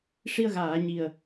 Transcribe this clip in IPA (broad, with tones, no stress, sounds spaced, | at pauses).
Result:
ʂ i˧ ə̯ ɣ aː˨˩˨ ɲ i˨˩ ə̯